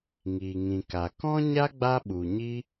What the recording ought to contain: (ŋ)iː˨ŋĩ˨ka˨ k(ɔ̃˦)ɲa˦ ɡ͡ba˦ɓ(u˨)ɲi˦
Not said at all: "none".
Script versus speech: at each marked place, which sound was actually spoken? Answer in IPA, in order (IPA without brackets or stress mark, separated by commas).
ŋ, ɔ̃˦, u˨